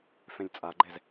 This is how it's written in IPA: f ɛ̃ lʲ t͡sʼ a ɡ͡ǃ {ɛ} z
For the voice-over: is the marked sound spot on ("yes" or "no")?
yes